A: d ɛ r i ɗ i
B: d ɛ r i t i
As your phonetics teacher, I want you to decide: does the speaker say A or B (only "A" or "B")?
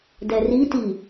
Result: B